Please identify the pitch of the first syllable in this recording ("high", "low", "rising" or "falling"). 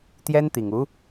high